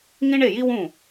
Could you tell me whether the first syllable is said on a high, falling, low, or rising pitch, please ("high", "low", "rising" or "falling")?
high